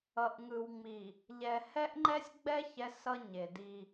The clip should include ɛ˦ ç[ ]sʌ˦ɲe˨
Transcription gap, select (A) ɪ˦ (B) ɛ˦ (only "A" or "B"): B